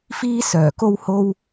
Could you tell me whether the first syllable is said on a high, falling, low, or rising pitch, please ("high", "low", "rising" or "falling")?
high